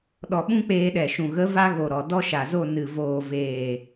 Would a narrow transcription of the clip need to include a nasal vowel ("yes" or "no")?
yes